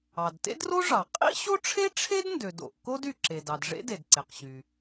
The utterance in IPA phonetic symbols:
ɑ˩ d t ḛ˥ d r o˥ ʐ ɑ˩ qʼ ḭ˥ ɕ o˥ ʈ͡ʂʰ e˥ ʈ͡ʂʰ e˥ d n d ø˩ d o̰˩ ʔ k o˥ d y˩ ǁ e˩ d ɑ˩ d ʐ ḛ˥ d e˩ d ǀ e˩ q ɕ y˩

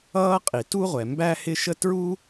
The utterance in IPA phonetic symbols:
ʌː˥ qʼ i˩ t u˥ ʁʷ ɛ˩ m b æ˥ h ɪ˥ ʃ ə˥ t ɹ u˥

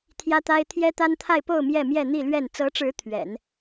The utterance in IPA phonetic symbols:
t̪ʰ j ä˥ t̪ a˥ ɪ̯ t̪ʰ j ɛ˥ t̪ a˥ n t̪ʰ a˥˧ ɪ̯ p o˥˧ ʊ̯ m j ɛ˥˧ m j ɛ˥˧ n̪ i˥˧ l ɥ ɛ˥˩ n t͡s ɤ˧˥ ʈ͡ʂ ɻ̩˧˥ t̪ʰ ɥ ɛ̰˨˩˦ n

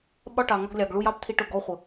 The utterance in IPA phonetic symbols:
ɓ ɒ˦ ʈ ɑ˨ ŋ ɒ˧ ɡ lʲ ɑ˨ ɡ ɭ u˧ j ɑ˦ p t̪ʰ i˧ ʈ ʊ˦˨ ɡ ɔ˦ χʷ ə˨

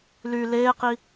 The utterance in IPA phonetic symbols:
l y l eː q i

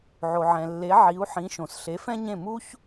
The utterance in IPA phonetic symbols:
ʕ o˩ ʕ ɛ̃˩ lː e˩˥ ʕ i˩˥ u̯ ħ ĩ˩˥ ʃ õ˩ s ɬ e˩˥ f ɛ̃˥ ɲ ẽ˥˩ m u˥ ç

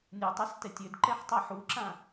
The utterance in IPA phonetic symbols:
nʲ u tˤ ɛ s t ɛ tʲ ø d ǃ ɛ ħ tˤ ɛ ħ u ǁ ã

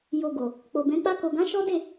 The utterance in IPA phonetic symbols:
j o˨ ɡ o˨ | k͡p o˨ b ɛ̃˨˦ k͡p a˧ k o˨ ɡ ã˨˦ ʃ ɔ˦ d e˦˨

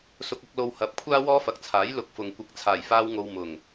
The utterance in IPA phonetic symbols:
s ʊ˧ k̚ ɐ˧ k̚ l o˧ w h ɐ˨˥ p̚ kʷʰ aː˥ w ɔː˥ f ɐ˨ k̚ t͡sʰ aː˨˥ j l ʊ˨˥ k̚ f ʊ˨ ŋ kʷ ɪ˧ k̚ t͡sʰ aː˨˩ j f aː˧ w ŋ o˨ w m ʊ˨˩ ŋ

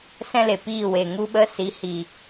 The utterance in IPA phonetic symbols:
s ɛ̃˦ l e˨ p iː˦˨ w e˨ ŋ u˧ ɓ ə˧ s i˨˦ h i˨

